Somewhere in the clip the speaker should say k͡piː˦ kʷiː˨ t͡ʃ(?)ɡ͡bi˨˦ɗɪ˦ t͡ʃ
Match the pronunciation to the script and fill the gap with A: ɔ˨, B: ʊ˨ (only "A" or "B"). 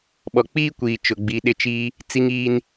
B